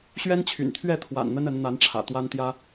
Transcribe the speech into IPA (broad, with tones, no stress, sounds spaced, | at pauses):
ɕ ɥ ɛ˦ n t͡ɕʰ y̰˨˩ n t̪ʰ ɥ ɛ˥˨ t̪ʰ w a̰˨˩ n n̪ ə˦ n ə˨˦ n n̪ a˨˦ n ʈ͡ʂʰ ä̰˨˩ t̪ w a˦ n t̪ j ä˦